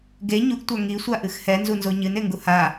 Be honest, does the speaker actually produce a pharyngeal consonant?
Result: no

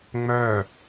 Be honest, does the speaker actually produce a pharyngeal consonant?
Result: no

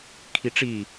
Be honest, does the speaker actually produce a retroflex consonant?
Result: yes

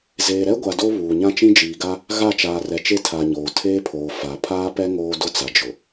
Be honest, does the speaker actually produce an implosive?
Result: no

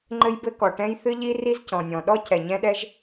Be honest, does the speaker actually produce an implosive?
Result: yes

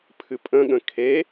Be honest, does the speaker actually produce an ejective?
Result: yes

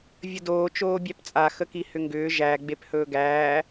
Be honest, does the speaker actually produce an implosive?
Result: no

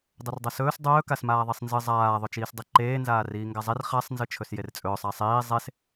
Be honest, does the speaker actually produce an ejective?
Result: yes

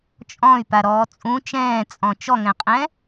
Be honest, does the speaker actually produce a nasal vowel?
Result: yes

